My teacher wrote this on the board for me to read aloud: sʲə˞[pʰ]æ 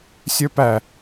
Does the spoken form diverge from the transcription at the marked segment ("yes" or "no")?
yes